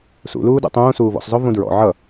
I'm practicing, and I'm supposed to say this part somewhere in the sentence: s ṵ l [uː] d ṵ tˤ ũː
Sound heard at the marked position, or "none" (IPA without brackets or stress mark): uː